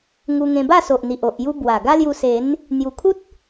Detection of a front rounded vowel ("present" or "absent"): absent